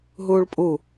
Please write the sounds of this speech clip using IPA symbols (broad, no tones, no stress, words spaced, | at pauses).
ɦuːɭpʼu